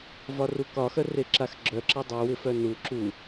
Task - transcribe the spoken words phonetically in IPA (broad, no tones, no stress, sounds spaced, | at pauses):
v ɒ r u k ɒ x œ r e ǁ a x ɡ͡ǁ œ ǁ a dˤ u w ɪ f œ n u ǁ u